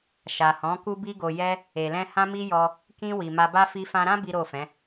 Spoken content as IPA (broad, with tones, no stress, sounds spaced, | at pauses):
ʃ a˨ h ɔ̃˨˦ k u˦ b i˦ ɡ o˧ j ɛ˦ | e˨ l ɛ̃˧ h ã˦ m i˦ j ɔ˧ | k ĩ˧ w i˨ m a˧ b a˦ f i˧ f ã˧ ɾ ã˦ b i˦ ɾ o˦˨ f ɛ̃˨˦